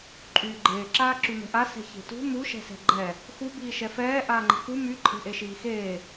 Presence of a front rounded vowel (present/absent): present